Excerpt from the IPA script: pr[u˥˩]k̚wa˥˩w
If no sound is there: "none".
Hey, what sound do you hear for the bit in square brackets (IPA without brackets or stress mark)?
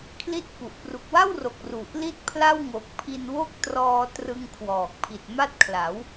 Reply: u˨˩